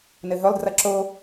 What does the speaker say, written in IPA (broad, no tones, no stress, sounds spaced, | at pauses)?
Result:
n ɘ ɦ ɵ lˠ d r ɐ ǁ o